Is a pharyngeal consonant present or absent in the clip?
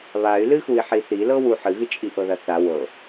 present